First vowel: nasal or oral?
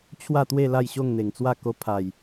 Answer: oral